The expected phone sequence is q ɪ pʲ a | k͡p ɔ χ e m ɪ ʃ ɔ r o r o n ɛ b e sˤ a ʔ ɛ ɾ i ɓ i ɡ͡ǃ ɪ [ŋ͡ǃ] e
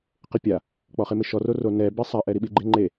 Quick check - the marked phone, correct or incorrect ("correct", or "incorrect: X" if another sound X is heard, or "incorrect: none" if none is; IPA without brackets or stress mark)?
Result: correct